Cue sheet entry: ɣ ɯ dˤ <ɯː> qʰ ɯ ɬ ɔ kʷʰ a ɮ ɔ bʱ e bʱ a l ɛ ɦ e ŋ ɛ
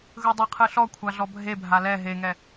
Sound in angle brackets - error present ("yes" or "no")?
yes